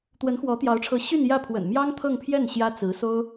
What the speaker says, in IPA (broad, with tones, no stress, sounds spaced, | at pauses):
t̪ w ə˧˥ n x w ɔ˧˥ t̪ j ɑ˧˥ ʊ̯ ʈ͡ʂʰ ɤ˧˥ ɕ y˥˧ n j ä˥˩ pʰ w ə̰˨˩ n m j ɑ˥ ŋ t̪ʰ ɤ˥˧ ŋ pʰ j ɛ˥˩ n ɕ j ä˥ t͡s ɹ̩˧˥ s o˥ ʊ̯